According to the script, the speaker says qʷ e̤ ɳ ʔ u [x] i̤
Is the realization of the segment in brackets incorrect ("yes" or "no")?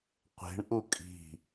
yes